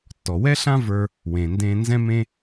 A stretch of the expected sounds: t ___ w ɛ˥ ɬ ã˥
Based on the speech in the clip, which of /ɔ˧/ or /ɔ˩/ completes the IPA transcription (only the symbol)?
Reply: ɔ˩